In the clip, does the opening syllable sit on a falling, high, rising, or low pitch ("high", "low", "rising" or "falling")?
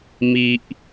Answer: low